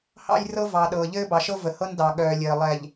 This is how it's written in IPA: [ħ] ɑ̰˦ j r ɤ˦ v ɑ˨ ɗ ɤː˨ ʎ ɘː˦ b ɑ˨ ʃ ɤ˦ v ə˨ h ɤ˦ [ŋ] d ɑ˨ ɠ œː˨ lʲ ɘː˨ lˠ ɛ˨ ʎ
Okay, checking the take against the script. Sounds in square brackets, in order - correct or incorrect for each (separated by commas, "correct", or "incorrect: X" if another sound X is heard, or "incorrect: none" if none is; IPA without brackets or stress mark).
incorrect: h, incorrect: n